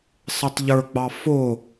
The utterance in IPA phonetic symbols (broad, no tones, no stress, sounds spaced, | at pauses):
sˤ ɪ tˤ ʎ ə˞ ɡ͡b ɑ f ʊ